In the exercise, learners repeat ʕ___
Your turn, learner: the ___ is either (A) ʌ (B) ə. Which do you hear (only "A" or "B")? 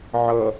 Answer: A